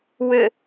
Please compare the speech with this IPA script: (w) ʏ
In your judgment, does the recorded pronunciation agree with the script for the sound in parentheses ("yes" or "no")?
yes